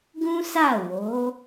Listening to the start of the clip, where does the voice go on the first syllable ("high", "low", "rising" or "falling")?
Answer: high